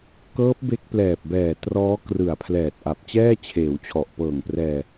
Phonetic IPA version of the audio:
k ɤː˦˥ p̚ b e˦˥ k̚ p l ɛː˨˩ p̚ b ɛː˨˩ t r ɔː˦˥ k r ɯ˨˩ a̯ pʰ l ɛː˨˩ t̚ ʔ a˨˩ p̚ t͡ɕ ɛː˥˩ t͡ɕʰ eː˩˦ w t͡ɕʰ ɔ˨˩ ʔ p ɤː˨˩ ŋ p r ɛː˧

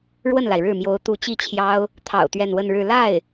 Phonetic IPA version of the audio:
ɻ w ə˥˩ n l a˩ ɪ̯ ɻ ɻ̩˥˩ m j o˧˥ ʊ̯ t̪ u˧˥ t͡ɕ i˥˩ t͡ɕʰ j ɑ˥ ʊ̯ | t̪ʰ ɑ̰˨˩ ʊ̯ t̪ ɥ ɛ˥˧ n w ə˥˧ n ɻ ɻ̩˥˧ l a˥˩ ɪ̯

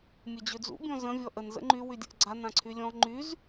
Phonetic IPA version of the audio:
mʲ ə d͡ʑ ø d͡z ṵ bʲ ɔ̃ z ə̃ vʲ ɔ ʔ ə n z ə̰ ŋ͡ǃ y w y dʲ ə ʔ ɡ͡ǀ a n ã ǀʰ y lʲ ɔ̃ ŋ͡ǃ y z

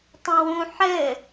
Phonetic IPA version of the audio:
tˤ ɛ̃ w ũ ħ ɘ

